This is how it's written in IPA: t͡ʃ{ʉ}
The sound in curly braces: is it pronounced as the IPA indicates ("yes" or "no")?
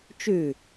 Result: yes